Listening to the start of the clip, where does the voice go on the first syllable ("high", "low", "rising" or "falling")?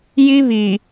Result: high